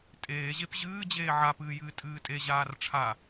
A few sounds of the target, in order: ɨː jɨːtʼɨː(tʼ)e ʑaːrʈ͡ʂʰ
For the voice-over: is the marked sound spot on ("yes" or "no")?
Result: yes